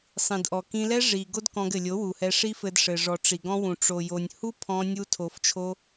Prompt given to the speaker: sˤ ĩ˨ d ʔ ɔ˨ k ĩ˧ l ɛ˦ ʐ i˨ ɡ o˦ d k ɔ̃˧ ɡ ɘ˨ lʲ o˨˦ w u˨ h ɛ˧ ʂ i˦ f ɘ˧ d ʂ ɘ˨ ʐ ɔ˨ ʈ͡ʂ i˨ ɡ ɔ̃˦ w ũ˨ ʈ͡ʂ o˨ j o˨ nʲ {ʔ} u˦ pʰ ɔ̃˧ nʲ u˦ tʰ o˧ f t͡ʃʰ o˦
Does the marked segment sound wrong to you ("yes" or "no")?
yes